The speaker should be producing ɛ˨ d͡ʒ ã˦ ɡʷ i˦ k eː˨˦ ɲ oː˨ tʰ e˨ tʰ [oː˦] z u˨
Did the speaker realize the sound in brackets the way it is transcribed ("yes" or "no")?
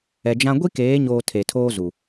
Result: yes